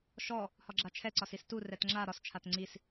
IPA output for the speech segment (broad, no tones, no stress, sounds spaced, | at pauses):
ʃ ɔ | h ɒ ɡ͡ǁ a t͡ʃʰ ɛ ǀ ɒ s i s t u r ɛ t ŋ͡ǁ a ɾ ɒ s t͡ʃʰ a t ŋ͡ǀ i s